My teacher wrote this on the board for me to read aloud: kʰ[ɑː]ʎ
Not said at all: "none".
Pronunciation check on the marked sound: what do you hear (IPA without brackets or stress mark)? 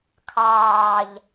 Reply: ɑː